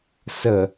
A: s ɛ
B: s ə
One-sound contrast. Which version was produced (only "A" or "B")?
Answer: B